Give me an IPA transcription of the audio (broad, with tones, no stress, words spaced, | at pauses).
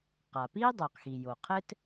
qa˩piː˥ dˤo˩qxi˩jo˩ qʰɘ˥t